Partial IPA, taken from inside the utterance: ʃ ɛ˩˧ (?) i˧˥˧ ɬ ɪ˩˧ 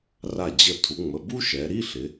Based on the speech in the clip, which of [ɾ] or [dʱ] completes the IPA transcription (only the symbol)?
ɾ